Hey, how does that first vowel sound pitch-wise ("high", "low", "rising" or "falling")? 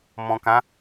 low